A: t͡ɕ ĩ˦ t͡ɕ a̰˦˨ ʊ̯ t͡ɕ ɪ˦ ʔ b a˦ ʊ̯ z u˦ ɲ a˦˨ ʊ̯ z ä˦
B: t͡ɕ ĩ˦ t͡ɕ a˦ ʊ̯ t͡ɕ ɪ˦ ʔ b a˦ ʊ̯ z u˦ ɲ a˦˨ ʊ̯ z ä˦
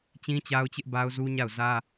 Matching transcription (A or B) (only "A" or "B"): B